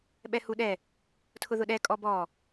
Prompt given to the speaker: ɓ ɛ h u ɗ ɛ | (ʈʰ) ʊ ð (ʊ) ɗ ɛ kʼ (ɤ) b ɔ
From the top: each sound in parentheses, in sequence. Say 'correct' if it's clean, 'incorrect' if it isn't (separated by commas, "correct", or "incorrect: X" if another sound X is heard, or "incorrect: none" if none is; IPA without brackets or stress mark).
incorrect: tʰ, correct, incorrect: ɔ